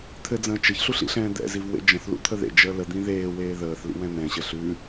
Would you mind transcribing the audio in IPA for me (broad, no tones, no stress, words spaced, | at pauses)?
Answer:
t̪ʰɘd͡zə̃ː t͡ʃɘçɬuɬ ḭɬɛ̃ːd̪ɛ̰ziv wḛd͡ʒə̃θlṵ t̪ʰəðḛd͡ʒəː ləd̪ĩ ðeːweː ðəːθlḭ wɛ̃nɛ̃ɕɘ ɬʉ